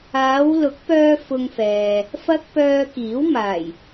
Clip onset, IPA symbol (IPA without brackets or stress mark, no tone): aː